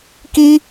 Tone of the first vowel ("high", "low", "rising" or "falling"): high